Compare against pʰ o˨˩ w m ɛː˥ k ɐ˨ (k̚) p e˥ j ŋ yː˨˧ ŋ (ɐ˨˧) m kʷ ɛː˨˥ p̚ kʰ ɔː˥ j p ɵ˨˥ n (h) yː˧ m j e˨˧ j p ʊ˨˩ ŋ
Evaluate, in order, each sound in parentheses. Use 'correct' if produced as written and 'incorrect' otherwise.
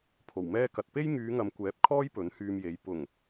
incorrect, incorrect, correct

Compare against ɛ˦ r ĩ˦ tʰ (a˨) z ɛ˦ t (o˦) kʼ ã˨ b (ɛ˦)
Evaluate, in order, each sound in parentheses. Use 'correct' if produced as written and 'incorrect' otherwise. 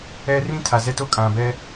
correct, correct, correct

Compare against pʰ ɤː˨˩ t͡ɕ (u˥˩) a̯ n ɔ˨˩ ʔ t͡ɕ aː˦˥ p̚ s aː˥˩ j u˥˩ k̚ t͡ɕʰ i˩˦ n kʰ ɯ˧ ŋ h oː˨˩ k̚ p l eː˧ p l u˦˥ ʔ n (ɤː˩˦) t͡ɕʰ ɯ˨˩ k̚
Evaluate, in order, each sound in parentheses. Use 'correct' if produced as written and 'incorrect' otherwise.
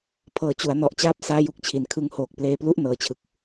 incorrect, incorrect

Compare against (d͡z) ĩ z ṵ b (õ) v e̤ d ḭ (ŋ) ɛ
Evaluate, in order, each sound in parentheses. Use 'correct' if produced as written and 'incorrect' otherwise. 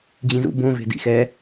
incorrect, correct, incorrect

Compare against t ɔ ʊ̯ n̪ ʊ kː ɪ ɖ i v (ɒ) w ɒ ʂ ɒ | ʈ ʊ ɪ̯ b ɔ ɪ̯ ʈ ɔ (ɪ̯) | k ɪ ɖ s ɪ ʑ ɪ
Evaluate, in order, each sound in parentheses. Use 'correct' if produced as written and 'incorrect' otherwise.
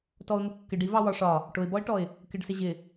incorrect, correct

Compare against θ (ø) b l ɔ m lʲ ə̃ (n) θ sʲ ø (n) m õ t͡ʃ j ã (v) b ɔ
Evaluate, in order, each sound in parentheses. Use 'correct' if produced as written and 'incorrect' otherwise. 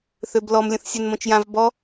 correct, incorrect, correct, correct

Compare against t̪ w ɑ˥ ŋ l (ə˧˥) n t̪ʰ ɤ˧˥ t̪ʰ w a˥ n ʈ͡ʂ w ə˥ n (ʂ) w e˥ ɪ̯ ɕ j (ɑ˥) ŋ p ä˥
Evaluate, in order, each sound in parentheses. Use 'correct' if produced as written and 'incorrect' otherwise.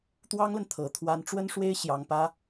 incorrect, correct, correct

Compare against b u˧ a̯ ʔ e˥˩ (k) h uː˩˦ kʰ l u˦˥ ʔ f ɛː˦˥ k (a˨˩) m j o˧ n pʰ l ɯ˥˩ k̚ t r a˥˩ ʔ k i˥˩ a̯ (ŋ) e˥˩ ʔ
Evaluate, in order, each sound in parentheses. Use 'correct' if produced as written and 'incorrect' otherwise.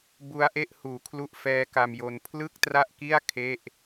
incorrect, incorrect, incorrect

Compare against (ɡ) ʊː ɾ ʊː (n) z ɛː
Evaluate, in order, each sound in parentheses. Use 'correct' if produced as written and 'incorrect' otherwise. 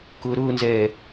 incorrect, correct

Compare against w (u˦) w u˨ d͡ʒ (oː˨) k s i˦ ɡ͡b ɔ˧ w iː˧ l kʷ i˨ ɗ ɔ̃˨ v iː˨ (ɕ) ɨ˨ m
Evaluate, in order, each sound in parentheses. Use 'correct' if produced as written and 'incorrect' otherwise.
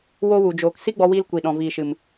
incorrect, correct, incorrect

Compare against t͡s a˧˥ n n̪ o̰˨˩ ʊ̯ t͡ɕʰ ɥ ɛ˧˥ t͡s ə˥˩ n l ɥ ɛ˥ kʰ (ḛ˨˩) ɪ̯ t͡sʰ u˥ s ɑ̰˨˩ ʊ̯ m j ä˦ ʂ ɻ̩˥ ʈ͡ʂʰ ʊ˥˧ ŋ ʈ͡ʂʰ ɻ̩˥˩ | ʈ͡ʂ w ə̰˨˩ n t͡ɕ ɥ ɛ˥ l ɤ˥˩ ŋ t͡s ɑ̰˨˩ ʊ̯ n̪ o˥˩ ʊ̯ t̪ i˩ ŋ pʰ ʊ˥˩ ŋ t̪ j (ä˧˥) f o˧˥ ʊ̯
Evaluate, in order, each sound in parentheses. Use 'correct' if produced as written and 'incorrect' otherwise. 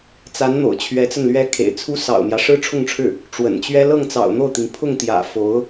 correct, incorrect

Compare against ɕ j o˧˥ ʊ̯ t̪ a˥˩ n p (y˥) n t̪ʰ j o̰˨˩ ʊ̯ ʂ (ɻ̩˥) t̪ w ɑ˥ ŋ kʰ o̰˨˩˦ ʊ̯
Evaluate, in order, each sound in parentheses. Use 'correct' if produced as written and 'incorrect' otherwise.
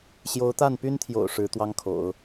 correct, incorrect

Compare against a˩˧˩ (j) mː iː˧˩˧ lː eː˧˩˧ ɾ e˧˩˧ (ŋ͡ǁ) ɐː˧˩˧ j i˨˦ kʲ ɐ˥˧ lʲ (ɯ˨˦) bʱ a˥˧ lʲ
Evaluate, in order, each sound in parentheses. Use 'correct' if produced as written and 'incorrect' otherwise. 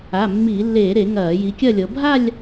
incorrect, incorrect, incorrect

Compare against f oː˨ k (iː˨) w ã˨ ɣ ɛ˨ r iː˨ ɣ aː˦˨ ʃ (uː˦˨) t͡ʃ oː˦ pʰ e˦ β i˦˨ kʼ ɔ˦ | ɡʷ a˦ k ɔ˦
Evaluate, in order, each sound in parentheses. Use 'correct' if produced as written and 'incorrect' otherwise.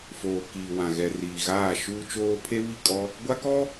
correct, incorrect

